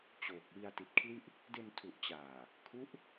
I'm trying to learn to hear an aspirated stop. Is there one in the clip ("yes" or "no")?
yes